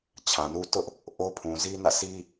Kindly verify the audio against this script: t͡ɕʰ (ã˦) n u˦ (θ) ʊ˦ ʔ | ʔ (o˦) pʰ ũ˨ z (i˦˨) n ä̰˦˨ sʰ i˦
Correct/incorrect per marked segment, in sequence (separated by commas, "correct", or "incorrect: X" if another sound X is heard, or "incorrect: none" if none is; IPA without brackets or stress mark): incorrect: ã˨, incorrect: t, correct, incorrect: i˦